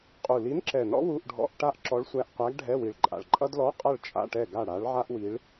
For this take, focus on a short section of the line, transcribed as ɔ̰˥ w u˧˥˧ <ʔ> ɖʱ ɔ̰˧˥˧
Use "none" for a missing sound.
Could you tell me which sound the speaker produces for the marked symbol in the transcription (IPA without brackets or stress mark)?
ʔ